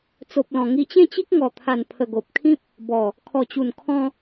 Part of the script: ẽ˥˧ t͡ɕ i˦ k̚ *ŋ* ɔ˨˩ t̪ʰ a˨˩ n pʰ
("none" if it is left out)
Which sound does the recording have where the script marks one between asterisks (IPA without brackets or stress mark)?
ŋ